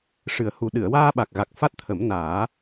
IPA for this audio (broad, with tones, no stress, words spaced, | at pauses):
ʂɨ˨˩ə̯hu˨˩ ɗɨ˨˩˨ə̯waː˧ɓa˨˩k̚ɣa˨˩k̚ fa˦˥t̚t̪ʰə˨˩˦mnaː˨˩˦